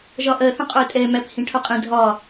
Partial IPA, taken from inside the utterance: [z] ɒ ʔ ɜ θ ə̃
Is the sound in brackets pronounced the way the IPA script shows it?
no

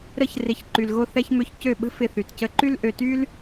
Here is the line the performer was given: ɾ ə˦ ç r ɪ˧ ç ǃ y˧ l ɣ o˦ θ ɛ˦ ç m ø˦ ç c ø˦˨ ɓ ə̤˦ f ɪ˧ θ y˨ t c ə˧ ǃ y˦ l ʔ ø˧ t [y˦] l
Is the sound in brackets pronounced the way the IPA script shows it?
yes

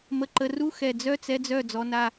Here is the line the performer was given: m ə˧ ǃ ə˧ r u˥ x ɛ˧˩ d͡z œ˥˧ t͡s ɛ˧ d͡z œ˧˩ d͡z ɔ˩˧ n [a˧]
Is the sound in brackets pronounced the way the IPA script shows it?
no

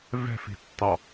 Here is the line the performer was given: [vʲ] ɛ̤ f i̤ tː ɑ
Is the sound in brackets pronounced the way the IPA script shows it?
no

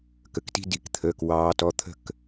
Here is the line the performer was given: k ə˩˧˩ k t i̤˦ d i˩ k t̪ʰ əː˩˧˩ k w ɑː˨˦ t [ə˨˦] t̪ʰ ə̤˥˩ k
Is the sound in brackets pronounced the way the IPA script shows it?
no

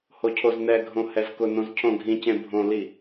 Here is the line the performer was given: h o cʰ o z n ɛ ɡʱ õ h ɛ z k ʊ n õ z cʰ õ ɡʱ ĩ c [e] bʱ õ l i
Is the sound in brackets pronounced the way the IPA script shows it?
no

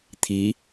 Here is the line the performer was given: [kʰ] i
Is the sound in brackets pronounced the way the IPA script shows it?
no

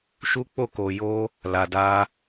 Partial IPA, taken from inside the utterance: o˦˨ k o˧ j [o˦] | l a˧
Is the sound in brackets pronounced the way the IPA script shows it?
yes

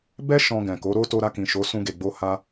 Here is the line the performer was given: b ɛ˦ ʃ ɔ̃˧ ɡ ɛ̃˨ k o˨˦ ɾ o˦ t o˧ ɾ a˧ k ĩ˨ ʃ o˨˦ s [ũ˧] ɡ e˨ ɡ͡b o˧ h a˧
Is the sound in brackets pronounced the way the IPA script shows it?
yes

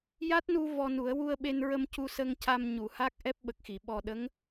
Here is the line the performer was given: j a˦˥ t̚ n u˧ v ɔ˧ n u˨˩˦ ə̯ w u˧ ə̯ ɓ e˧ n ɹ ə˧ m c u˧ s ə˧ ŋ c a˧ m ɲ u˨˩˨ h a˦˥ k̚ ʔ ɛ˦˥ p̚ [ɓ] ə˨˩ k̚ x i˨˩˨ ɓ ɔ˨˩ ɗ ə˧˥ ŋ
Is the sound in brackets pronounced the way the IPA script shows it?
yes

